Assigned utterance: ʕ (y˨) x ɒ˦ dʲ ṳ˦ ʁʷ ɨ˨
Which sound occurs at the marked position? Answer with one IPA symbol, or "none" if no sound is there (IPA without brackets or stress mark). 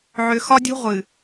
ʏ˨